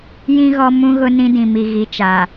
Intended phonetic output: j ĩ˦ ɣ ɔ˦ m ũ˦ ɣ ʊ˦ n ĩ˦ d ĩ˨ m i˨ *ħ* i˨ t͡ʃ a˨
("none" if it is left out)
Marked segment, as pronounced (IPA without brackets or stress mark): ɣ